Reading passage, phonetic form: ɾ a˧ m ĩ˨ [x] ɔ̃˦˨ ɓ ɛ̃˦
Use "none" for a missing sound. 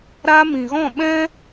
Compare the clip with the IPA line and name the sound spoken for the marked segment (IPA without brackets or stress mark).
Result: ɣ